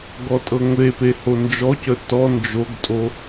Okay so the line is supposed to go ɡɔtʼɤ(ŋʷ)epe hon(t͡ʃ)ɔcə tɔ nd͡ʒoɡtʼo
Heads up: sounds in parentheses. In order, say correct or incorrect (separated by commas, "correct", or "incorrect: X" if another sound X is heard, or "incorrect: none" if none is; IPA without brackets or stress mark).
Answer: correct, incorrect: d͡ʒ